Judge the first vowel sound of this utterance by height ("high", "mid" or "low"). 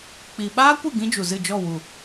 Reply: high